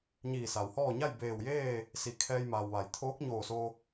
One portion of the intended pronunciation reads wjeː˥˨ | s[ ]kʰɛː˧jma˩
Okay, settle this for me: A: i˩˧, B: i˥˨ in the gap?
A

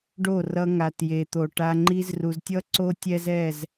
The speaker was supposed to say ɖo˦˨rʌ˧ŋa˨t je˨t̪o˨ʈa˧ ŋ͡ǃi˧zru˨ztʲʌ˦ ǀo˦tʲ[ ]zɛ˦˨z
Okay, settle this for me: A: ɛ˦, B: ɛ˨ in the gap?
A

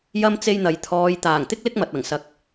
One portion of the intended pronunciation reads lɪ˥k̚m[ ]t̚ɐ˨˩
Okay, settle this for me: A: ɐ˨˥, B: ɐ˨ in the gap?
B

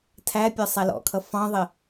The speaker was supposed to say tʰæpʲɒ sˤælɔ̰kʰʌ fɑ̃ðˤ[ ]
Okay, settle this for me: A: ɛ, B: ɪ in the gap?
B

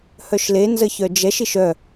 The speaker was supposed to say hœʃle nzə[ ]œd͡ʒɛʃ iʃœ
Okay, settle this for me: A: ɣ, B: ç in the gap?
B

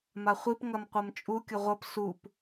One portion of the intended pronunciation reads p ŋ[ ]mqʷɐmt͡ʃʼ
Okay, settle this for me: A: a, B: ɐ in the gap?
B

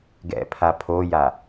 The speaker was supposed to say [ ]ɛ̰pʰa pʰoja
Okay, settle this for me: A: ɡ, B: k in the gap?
A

